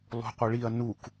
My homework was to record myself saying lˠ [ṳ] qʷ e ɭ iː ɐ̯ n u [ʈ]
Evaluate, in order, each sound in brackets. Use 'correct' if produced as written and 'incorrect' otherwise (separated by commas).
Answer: correct, incorrect